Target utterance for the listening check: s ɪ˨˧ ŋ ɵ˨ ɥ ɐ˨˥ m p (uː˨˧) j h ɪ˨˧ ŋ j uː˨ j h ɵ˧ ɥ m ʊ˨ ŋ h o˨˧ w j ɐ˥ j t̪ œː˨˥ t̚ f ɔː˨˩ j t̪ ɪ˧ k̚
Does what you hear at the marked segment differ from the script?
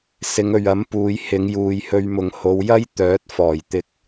no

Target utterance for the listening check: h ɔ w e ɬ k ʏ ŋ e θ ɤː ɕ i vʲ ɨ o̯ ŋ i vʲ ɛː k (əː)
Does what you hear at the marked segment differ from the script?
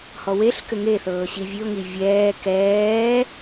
yes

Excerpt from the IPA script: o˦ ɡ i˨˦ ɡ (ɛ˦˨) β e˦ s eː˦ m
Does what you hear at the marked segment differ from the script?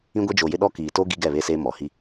no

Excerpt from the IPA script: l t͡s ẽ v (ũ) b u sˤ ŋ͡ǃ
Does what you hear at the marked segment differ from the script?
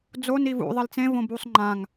yes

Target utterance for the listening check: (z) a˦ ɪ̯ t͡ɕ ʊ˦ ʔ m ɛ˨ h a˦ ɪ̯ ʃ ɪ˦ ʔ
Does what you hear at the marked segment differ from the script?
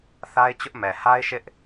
yes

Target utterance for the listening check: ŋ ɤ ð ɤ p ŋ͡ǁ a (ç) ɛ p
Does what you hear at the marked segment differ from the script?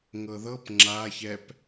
no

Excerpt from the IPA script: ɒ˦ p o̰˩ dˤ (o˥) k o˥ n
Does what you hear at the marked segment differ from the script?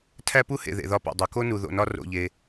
yes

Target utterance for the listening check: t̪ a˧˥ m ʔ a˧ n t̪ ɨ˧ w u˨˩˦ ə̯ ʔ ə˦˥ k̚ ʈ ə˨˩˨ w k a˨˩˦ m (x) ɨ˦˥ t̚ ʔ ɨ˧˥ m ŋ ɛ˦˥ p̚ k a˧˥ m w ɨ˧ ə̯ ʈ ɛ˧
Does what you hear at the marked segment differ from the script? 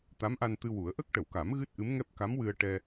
yes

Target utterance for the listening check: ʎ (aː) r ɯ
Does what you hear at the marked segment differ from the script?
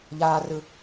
no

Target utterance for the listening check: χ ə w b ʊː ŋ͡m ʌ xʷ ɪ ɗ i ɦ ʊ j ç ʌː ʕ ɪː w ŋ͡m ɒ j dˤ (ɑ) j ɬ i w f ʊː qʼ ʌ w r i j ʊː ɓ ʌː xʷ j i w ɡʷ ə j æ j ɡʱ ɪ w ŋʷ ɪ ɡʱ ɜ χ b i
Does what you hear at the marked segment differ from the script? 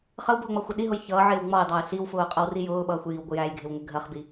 no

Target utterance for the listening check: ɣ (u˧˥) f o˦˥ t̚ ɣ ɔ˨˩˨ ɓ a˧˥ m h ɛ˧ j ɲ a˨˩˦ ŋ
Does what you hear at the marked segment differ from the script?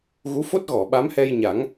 no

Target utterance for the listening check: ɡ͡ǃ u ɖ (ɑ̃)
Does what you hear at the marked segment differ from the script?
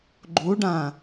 yes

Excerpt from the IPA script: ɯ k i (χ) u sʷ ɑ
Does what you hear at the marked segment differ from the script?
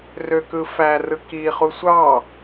no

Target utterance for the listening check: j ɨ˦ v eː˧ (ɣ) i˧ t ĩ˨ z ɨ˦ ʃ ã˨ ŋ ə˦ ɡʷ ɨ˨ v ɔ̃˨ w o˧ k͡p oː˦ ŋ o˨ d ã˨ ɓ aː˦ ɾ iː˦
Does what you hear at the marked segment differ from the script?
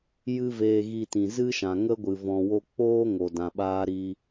no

